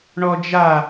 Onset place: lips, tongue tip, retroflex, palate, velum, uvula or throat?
retroflex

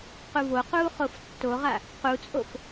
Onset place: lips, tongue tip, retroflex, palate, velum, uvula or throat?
uvula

